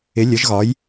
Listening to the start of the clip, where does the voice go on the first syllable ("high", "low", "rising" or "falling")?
rising